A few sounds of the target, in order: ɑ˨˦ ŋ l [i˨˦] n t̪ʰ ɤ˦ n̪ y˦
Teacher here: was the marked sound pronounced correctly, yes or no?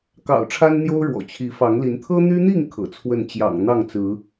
yes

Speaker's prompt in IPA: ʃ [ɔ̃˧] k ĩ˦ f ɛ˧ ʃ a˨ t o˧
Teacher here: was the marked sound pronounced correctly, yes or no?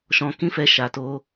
yes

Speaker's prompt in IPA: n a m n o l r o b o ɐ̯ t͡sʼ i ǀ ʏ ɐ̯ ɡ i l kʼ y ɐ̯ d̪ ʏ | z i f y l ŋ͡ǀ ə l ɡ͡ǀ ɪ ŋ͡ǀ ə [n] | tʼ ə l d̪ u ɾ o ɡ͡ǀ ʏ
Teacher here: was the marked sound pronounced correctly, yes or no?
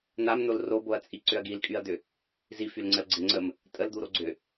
no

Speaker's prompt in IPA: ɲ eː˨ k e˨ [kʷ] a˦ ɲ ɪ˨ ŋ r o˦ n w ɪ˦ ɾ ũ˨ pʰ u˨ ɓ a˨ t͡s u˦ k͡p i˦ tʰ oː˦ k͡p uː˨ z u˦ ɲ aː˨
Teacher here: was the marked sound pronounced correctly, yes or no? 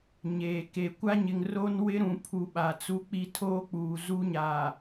yes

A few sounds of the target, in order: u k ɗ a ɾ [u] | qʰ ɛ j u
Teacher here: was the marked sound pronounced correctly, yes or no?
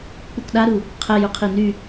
yes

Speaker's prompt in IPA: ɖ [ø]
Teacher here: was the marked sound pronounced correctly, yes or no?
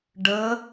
no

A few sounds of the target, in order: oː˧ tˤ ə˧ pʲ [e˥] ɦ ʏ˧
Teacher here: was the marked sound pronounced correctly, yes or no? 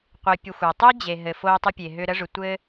no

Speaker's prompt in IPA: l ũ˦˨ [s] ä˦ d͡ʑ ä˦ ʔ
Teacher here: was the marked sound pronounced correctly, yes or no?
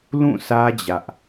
yes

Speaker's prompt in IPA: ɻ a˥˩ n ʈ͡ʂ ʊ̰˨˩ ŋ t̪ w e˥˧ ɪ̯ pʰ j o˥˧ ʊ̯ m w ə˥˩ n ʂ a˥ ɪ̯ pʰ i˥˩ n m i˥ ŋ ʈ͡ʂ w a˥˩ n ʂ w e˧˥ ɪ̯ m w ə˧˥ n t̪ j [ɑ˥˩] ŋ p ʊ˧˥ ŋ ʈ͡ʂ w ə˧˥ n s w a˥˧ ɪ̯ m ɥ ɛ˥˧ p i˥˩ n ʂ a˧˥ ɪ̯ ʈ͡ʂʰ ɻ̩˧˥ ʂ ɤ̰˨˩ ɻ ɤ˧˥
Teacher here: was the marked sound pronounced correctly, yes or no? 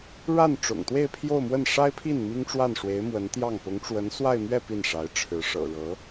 yes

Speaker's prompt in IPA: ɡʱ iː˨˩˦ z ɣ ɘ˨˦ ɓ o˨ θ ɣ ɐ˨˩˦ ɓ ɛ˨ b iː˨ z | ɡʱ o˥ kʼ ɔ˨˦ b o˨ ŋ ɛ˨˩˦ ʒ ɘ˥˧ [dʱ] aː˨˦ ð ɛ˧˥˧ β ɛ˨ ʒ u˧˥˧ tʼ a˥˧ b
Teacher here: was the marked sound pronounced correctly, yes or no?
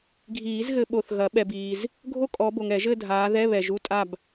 yes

